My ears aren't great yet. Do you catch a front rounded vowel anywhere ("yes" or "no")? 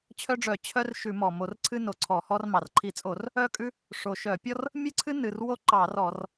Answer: yes